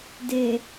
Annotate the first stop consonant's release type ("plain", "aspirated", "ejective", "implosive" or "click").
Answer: plain